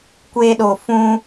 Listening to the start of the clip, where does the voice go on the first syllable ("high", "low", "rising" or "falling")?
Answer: high